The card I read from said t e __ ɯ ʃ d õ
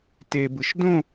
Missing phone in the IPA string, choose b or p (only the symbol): b